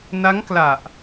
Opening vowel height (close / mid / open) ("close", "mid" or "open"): open